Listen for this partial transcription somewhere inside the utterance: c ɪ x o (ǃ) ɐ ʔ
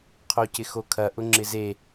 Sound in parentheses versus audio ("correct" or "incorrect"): incorrect